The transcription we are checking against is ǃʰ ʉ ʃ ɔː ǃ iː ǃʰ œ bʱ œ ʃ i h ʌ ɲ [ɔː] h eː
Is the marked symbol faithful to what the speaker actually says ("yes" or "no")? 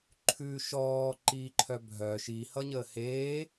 no